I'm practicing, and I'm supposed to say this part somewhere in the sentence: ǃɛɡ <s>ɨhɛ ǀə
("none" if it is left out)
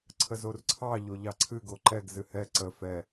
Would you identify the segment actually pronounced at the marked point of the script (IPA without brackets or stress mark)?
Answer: z